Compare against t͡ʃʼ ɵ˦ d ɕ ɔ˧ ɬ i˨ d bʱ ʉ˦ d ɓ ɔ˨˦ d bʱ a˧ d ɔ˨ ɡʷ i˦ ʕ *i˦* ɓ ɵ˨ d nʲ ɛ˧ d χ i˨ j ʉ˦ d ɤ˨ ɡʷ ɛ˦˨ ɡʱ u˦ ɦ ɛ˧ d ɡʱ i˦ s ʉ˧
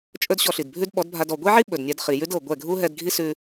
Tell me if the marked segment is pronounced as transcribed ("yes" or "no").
yes